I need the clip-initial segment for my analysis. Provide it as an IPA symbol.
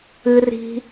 ɨ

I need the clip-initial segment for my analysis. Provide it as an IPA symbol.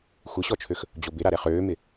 xʷ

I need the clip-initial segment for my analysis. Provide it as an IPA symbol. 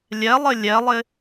lʲ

